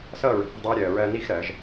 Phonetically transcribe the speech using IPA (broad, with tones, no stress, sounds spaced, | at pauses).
s ʌː˥˧ ɹ ə̤˧˩ f ə̤˥˧ dˤ ʌː˥ ɾʲ ɜː˧ ɹ ɜ˧ n i˥˧ x ɾ ɜː˩˧ ʒ